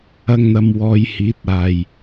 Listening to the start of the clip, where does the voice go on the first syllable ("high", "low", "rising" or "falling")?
high